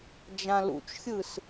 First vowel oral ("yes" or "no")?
no